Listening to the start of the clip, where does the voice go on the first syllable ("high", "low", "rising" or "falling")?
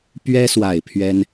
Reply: high